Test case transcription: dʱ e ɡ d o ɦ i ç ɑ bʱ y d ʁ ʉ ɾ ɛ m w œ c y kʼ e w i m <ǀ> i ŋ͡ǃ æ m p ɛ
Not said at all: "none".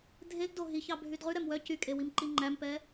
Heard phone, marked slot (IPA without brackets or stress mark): ǃ